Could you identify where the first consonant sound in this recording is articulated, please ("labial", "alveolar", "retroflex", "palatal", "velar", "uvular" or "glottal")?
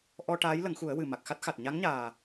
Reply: glottal